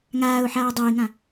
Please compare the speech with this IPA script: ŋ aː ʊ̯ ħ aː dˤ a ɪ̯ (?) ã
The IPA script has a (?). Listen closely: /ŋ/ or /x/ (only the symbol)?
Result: ŋ